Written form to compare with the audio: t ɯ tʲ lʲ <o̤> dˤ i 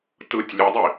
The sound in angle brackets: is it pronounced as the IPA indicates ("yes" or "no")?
no